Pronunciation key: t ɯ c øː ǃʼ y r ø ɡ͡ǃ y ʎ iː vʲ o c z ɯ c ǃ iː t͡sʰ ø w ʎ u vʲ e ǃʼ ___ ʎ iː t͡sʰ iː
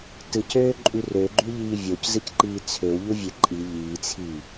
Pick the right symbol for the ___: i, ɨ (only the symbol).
i